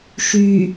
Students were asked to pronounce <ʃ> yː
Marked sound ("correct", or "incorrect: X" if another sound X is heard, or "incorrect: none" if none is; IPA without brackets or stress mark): correct